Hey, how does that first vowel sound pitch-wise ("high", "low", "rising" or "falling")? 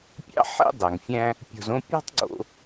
high